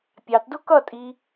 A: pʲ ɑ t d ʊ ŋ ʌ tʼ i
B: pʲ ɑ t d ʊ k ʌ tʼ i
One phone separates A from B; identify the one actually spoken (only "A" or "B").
B